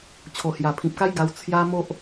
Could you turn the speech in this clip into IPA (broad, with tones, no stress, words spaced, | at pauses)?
t͡ɕʰo˨˩hja˨˩pʰĩ˨p̚ka˦j ɡa˧wt͡sʰja˦ mo˦ʔ